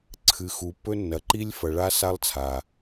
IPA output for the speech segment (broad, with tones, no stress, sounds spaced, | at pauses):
ǀʰ ɨ˨ x u˨ pː ɵ˦ nː ɐ˨ ǃ i˦ lʲ f ɐ˨ ɭ a˦ s a˦ lˠ t͡sʰ a˨